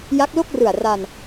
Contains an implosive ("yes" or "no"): no